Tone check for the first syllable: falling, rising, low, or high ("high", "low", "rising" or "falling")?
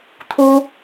high